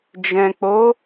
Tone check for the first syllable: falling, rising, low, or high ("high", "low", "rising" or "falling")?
low